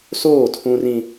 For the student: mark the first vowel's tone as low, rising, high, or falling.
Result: falling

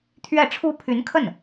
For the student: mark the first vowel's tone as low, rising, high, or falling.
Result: falling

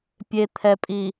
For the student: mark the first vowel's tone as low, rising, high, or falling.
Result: low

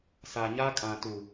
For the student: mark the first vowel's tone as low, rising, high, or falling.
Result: low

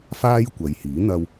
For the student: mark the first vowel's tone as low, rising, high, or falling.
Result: high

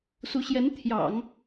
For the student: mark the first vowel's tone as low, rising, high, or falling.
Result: rising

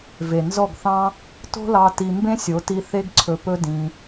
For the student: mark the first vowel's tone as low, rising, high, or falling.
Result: low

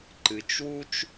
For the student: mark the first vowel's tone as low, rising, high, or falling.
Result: low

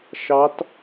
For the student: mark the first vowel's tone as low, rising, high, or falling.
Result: rising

